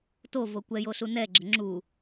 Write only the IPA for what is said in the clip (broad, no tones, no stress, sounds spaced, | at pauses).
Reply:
t o v o kʷ ɛ j o ɬ u n ɛ ɡ͡ǁ ə ŋ͡ǁ u